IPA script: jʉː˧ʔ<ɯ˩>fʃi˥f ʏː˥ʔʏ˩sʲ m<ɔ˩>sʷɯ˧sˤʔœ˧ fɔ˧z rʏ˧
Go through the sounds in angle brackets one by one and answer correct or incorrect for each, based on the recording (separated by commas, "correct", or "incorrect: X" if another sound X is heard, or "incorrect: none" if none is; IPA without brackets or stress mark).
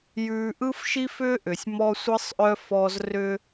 incorrect: ɯ˥, incorrect: ɔ˧